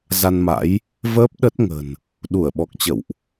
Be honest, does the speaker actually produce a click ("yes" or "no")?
no